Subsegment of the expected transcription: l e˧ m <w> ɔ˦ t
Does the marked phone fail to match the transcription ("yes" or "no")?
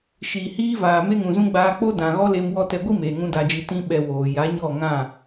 no